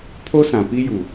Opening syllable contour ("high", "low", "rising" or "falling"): high